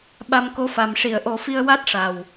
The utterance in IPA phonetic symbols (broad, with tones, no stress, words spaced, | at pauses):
ɓa˧mko˧˥fa˨˩m ʂi˨˩˨ə̯ʔo˨˩˦fi˧ə̯ wa˦˥t̚ʂa˨˩w